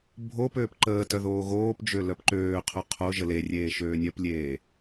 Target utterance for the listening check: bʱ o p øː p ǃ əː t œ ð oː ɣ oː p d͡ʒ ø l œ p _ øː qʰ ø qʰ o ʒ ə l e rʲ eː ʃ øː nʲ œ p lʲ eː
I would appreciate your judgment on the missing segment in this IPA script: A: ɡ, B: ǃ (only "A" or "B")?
B